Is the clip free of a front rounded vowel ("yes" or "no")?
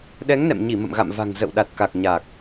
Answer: yes